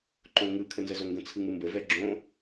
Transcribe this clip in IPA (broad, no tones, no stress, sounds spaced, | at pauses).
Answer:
ǃ õ ŋ ɯ kʰ ə n z ə z o ŋ ɡ ə̃ t͡sʰ ɯ ŋ ɯ m b ə v ɛ ɡ͡ǁ õ